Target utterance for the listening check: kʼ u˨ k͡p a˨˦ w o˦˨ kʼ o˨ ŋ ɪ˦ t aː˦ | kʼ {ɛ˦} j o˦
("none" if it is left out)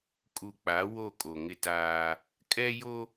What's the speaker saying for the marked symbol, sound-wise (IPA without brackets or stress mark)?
ɛ˦